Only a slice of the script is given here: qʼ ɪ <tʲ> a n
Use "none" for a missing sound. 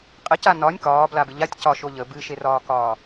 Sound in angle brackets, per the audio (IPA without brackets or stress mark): c